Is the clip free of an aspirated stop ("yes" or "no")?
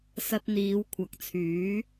no